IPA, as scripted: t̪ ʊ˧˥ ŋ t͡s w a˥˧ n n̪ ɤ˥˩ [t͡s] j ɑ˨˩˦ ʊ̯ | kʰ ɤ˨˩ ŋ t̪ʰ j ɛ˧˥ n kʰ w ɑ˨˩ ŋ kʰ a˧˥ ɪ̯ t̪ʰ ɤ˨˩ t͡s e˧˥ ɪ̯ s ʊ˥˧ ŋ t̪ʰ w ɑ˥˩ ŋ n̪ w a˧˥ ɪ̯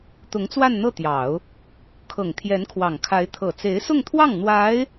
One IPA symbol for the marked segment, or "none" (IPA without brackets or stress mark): t̪